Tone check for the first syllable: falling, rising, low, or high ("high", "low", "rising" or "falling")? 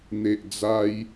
low